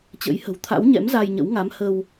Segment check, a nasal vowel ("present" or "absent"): absent